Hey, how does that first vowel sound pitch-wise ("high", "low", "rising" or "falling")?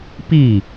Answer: falling